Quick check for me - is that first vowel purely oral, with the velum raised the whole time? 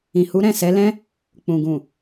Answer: no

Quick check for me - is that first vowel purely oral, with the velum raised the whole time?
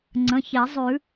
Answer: no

